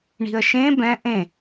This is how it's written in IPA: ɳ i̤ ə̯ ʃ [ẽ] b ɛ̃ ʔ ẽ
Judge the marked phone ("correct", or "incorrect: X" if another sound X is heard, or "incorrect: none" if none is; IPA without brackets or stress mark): correct